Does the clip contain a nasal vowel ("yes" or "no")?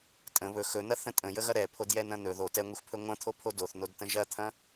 yes